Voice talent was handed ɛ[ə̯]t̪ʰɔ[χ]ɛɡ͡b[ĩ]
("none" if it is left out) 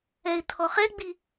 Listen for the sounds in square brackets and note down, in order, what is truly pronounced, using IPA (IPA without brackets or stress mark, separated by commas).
ɪ̯, χ, i